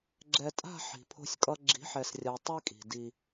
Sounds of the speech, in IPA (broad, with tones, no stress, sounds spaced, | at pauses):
ɡ͡ǁ ɛ˨ tʼ a̤˦˨ ħ i̤˨ pʰ o̤˦ sʲ kʼ ʌ˦ ɡ͡ǁ i̤˨˦ ħ ɛ˨ s rʲ a˨ tˤ i˦ kʼ i̤˨ d i˦